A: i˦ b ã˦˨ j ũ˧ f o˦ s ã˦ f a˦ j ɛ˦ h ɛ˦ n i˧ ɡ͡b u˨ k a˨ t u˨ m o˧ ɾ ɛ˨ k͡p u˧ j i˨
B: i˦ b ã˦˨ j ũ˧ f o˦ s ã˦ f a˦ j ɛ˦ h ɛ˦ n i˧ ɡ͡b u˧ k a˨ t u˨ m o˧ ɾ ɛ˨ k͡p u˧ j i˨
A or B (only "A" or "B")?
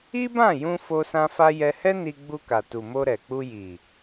B